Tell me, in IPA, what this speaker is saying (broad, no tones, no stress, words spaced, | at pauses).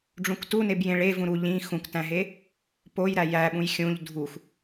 ɖ͡ʐũktuneb jẽɭe vũɾu ʎĩ xũktæ̃ɦe | poj ɾæjæɓũj xʲũʎ dʱux